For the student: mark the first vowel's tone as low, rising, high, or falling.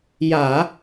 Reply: low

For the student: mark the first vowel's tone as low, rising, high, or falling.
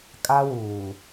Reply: high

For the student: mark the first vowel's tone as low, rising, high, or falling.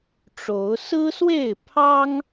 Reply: rising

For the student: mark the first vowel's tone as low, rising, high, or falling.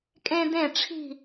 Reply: high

